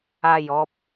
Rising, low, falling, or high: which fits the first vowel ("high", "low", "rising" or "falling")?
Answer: falling